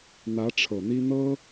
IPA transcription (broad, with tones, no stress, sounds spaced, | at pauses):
n̪ ä˧˥ ʈ͡ʂʰ ɤ˨˩ n̪ i˥ n̪ ɤ˥